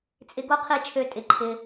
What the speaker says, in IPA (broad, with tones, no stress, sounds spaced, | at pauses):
t͡sʼ ɪ˧ ɡ o˦ qʰ i˧ t͡ʃʰ ø˨˦ tʼ ɪ˨ ǃʰ ɪ˧